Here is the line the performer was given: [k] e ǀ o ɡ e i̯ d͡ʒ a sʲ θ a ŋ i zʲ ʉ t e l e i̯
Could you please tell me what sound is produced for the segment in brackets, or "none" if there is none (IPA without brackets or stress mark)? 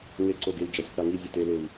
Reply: ŋ